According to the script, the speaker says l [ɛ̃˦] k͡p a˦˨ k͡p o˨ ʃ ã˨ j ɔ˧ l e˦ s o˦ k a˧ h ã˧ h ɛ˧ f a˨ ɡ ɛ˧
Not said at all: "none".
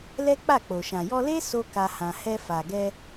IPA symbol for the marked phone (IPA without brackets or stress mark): ɛ˦